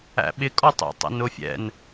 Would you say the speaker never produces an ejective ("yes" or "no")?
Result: no